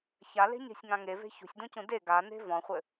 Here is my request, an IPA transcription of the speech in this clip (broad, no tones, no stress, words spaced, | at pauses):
çale̤ɲe̤sʲŋã ŋeve̤ çṳsʲdũcũ de ɡane̤ vɔ̃χʷɘ